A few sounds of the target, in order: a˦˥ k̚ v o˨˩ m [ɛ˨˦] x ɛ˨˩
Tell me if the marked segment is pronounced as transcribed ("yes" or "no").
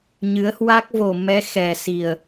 yes